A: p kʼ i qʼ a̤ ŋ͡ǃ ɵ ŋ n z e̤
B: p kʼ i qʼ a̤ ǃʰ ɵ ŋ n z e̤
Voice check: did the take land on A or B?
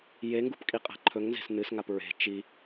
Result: B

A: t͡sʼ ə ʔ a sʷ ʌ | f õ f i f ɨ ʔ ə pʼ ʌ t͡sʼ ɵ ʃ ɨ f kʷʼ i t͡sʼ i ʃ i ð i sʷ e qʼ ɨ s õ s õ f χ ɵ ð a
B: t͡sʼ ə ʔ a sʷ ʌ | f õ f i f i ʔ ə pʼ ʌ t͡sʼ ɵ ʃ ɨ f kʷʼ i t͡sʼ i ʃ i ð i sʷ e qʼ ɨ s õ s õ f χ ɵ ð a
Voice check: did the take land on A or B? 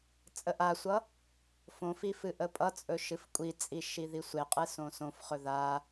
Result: A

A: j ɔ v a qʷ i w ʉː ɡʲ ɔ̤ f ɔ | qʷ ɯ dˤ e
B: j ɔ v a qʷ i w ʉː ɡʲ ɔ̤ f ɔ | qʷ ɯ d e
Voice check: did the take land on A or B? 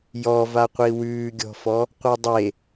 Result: A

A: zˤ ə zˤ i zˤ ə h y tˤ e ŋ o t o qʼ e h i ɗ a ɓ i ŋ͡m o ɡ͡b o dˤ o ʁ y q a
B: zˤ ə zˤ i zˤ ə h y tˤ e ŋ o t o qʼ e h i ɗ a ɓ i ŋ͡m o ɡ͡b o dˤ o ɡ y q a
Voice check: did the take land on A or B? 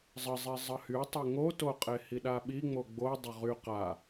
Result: A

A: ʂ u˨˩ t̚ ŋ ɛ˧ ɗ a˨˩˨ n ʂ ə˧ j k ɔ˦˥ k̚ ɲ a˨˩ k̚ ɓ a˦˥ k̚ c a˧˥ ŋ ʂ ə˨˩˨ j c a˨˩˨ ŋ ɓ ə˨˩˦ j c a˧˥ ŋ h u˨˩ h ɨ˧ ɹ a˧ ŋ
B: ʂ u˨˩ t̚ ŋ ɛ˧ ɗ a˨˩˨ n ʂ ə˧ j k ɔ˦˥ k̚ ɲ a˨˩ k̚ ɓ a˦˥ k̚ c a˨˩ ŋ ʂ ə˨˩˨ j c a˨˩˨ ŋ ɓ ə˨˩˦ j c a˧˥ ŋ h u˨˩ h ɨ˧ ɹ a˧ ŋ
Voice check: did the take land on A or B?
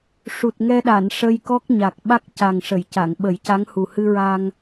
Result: B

